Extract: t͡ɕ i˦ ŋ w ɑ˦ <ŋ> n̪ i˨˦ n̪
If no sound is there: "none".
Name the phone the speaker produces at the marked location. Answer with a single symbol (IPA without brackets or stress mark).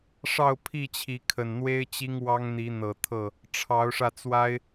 ŋ